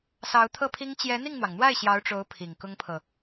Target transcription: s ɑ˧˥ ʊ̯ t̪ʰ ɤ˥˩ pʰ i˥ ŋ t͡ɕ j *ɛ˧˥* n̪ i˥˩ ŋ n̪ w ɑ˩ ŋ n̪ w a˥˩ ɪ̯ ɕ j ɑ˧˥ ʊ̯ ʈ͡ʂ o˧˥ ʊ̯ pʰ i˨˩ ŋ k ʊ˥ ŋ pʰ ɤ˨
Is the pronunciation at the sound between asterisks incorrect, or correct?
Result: correct